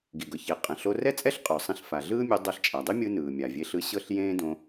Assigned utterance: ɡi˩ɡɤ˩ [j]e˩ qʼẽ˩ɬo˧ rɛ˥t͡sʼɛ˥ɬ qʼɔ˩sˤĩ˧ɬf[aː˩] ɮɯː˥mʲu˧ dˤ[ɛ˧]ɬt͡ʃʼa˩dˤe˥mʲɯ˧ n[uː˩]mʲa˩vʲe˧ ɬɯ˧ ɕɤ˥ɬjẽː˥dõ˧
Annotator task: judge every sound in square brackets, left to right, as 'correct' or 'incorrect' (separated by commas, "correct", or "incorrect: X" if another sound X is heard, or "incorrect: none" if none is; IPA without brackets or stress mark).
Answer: incorrect: ç, correct, correct, incorrect: ɯː˩